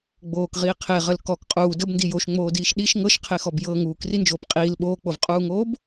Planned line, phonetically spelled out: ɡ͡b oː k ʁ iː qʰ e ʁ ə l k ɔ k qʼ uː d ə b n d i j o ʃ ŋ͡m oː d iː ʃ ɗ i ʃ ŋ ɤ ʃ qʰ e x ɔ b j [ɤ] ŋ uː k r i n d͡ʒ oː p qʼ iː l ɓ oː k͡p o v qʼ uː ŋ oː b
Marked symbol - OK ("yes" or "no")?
yes